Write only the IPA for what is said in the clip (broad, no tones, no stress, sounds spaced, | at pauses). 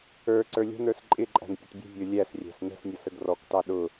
ə˞ ǀ ə˞ lʲ ə̤ n ə˞ s ǃʼ ɪ ǃʼ æ̤ n pʲ ə t bʲ ə̤ vʲ ə˞ lʲ æ s rʲ æ̤ s n ə̤ s nʲ ʌ s ə ɡ r ɔ k t ɑ ɗ ʊ